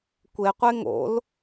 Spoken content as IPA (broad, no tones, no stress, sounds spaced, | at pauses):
kʷ e qʷ e ŋ o̰ l